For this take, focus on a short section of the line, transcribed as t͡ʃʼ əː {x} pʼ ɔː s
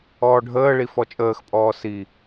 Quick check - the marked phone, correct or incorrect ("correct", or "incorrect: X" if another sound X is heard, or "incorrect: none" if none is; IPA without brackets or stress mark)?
correct